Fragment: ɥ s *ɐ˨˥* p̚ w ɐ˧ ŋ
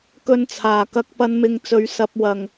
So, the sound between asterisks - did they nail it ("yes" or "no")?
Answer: yes